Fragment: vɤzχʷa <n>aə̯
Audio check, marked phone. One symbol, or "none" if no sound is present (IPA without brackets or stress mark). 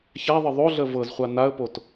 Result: n